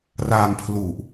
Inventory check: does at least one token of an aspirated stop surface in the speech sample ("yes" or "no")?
yes